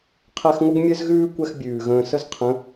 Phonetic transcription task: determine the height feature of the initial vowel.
mid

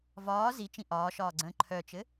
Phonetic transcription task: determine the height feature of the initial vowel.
low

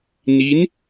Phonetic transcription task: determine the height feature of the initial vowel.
high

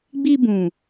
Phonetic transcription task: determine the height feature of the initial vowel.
high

